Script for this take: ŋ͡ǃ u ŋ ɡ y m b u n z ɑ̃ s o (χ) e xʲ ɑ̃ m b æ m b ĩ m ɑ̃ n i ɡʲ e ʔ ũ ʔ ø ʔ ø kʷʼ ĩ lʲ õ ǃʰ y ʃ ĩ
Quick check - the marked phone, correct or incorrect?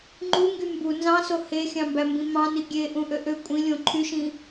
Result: incorrect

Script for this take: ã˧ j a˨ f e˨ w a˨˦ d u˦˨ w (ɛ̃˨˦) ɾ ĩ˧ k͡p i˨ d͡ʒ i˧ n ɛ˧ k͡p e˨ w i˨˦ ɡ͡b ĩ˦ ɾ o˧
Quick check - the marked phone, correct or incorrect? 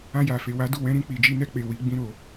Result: correct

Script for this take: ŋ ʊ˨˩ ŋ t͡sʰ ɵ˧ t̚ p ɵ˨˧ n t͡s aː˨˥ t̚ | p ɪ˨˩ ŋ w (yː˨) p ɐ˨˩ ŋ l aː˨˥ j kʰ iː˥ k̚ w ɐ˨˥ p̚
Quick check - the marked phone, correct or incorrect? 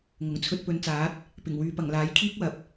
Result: correct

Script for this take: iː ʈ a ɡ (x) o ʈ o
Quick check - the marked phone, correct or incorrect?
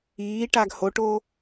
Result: incorrect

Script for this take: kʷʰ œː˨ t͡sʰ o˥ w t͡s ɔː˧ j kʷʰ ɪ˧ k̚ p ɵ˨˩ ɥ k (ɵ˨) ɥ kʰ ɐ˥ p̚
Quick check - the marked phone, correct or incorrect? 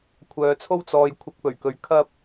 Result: incorrect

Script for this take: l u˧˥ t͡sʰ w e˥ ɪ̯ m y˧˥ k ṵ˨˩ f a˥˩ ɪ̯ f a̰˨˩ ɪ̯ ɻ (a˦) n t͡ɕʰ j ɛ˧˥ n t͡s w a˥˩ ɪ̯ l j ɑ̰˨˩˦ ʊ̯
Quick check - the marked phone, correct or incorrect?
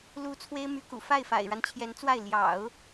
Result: correct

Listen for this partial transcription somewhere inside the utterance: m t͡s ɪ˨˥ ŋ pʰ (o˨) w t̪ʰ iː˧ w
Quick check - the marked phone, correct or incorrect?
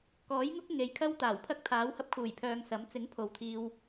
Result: correct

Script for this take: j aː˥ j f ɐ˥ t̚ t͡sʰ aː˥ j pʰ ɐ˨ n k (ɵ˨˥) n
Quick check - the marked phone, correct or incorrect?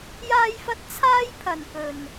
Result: incorrect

